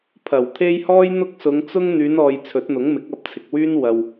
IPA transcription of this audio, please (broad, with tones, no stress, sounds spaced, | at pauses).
pʰ ɐ˨˩ w t̪ʰ e˥ j h ɔː˥ j n̪ ʊ˥ k̚ s ʊ˨˧ ŋ t͡s ʊ˥ ŋ n̪ yː˨˧ n ɔː˨ j t͡sʰ ɵ˨˥ t̚ n̪ ʊ˨˥ ŋ m ɪ˨˥ k̚ ɐ˨˥ p̚ t͡sʰ ɪ˨ k̚ w yː˥ n w ɐ˨ w